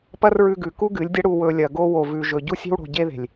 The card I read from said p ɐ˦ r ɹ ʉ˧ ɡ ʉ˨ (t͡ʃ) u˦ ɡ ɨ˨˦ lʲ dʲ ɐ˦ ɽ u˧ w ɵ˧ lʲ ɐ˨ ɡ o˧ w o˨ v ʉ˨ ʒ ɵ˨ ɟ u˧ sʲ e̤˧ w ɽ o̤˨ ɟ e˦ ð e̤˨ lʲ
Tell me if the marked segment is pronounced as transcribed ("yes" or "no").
no